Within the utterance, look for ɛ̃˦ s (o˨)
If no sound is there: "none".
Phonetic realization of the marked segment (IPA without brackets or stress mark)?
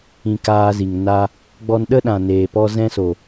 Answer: o˨